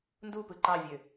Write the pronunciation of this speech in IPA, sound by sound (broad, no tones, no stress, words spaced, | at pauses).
ndupɯ ǃɑvʲø